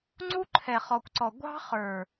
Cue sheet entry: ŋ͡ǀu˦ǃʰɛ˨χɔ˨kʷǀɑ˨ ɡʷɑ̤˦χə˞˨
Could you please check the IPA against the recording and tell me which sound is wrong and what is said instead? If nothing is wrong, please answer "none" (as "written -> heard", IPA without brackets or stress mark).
ɑ˨ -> ɔ˨